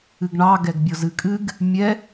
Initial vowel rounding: unrounded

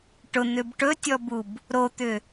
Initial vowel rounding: rounded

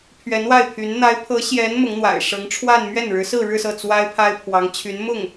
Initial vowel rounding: unrounded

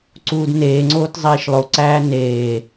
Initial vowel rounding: rounded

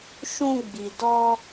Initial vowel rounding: rounded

